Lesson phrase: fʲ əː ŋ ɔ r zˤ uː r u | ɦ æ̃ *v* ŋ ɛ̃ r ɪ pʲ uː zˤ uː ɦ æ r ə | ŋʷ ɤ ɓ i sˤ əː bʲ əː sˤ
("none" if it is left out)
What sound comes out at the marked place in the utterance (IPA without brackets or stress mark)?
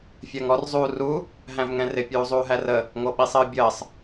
v